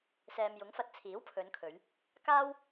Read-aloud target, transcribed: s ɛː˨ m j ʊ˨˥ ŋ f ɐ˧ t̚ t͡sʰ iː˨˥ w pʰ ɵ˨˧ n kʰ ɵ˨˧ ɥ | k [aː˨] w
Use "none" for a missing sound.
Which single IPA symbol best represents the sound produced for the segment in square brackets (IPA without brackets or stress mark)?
aː˥